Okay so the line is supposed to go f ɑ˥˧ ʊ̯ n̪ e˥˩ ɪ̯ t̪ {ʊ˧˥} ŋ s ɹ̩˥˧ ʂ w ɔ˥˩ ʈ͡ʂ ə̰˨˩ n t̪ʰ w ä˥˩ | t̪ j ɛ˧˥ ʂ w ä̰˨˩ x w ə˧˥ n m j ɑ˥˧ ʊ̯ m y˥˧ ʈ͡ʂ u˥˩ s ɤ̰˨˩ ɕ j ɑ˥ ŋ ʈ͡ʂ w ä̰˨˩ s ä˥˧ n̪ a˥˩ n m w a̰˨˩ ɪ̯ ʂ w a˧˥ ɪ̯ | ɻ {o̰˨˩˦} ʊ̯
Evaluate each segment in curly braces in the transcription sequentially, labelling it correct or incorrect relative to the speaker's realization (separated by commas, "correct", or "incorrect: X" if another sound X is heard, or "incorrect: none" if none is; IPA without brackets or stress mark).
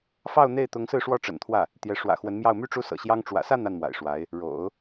correct, correct